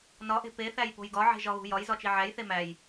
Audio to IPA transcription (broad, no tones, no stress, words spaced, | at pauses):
nɒʔe̤ peθæjpo̤j ɡɒʕe̤ʒɒɣṳ jɒjzɒt͡ʃi ʕæjθe mæj